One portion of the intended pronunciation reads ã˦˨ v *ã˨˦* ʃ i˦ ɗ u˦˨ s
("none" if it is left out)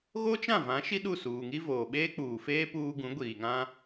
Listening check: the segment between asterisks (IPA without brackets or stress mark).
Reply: ã˨˦